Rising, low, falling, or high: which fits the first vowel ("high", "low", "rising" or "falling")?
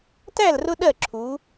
falling